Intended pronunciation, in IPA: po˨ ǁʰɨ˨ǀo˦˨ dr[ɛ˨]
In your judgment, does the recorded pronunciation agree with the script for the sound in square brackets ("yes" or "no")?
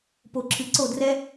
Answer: no